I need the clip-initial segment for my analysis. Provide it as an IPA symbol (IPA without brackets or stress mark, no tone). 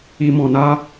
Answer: i